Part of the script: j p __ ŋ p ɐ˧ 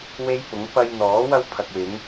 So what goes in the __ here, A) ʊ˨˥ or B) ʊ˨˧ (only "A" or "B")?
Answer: A